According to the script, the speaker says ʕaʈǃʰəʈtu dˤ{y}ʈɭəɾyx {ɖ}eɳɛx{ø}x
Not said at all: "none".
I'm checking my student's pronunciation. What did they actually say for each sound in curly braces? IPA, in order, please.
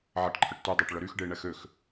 e, ɖ, ø

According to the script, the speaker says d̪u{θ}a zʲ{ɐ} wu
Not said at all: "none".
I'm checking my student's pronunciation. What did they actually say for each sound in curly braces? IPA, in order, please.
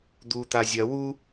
t̪, ɐ

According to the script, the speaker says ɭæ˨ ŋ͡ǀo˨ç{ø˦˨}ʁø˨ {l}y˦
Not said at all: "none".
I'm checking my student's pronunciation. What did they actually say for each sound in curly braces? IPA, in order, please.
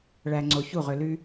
u˦˨, l

